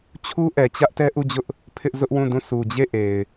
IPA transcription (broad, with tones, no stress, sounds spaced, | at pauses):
t͡ɕʰ u˦ ʔ ɛ˨ t͡ɕ ä˦ ʔ t ɛ˦ ʔ u˦˨ d͡ʑ ʊ˦ ʔ | pʰ ɪ˦ ʔ z ʊ˦ ʔ w ũ˦˨ d ũ˦˨ s u˨ d͡ʑ e˦˨ ʔ e˨ ɪ̯